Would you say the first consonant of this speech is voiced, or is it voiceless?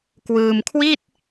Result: voiceless